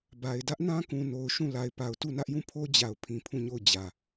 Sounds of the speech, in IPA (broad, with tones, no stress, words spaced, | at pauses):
ba˨ɪ̯ dä˦ʔnã˦kũ˨ no˨ʊ̯ʃũ˦˨ la˨ɪ̯pa˨ʊ̯ tu˦˨nä˦ʔjũ˦˨pʰo˦ d͡ʑa˨ʊ̯ pʰĩ˨pʰũ˦˨ɲo˦˨ʊ̯ d͡ʑä˨